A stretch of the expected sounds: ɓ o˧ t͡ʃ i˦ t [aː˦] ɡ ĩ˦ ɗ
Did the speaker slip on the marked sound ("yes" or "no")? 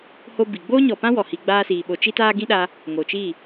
no